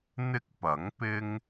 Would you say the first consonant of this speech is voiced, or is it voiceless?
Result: voiced